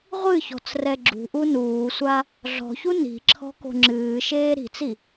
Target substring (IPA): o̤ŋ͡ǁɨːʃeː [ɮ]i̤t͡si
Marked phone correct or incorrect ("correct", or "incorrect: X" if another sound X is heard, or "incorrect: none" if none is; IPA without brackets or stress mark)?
incorrect: ɾ